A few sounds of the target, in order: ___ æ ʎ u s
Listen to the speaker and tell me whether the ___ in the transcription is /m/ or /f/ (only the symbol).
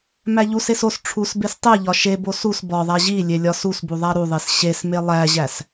m